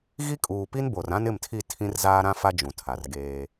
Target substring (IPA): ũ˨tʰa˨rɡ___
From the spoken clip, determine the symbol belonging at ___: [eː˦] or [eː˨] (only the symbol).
eː˦